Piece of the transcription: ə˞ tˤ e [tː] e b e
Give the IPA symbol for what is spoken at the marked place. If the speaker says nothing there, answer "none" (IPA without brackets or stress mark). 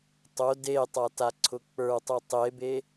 tˤ